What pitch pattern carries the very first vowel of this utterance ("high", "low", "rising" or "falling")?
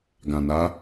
low